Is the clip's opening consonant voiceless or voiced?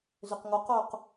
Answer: voiced